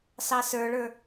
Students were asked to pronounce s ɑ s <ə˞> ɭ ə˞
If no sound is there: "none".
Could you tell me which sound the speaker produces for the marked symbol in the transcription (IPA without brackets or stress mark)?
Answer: ə˞